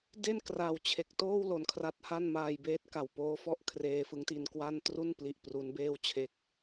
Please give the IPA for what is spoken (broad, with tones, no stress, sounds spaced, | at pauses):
d e˥˩ n k r a˨˩ w t͡ɕʰ e˨˩ k̚ t oː˥˩ w l o˨˩ n kʰ r a˦˥ t̚ h a˥˩ n m aː˧ j b eː˦˥ t̚ k a˨˩ w p oː˦˥ f ɔ˥˩ ʔ kʰ r eː˧ f ɯ˦˥ ŋ t i˧ n k w a˥˩ n t r u˥˩ n p l i˨˩ ʔ p r u˦˥ n b eː˥˩ w t͡ɕʰ e˥˩ k̚